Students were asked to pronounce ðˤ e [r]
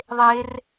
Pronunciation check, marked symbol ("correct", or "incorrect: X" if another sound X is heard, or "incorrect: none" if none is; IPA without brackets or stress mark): correct